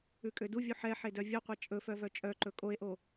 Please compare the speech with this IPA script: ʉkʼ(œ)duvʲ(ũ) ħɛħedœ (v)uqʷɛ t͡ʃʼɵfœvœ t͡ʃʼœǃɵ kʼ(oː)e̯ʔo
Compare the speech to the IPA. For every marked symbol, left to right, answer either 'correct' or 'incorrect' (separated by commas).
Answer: incorrect, incorrect, incorrect, incorrect